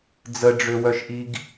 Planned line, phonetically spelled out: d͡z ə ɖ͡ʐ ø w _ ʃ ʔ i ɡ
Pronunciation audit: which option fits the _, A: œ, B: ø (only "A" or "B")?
A